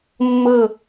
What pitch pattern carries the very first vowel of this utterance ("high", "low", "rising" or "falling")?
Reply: falling